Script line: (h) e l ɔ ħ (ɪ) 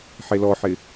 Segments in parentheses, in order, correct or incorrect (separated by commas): incorrect, correct